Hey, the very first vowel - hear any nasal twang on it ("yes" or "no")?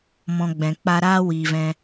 yes